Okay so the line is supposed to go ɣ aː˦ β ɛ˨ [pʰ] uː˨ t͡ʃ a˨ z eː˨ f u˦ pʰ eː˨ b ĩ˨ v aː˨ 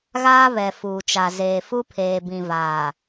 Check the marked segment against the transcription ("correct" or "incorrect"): incorrect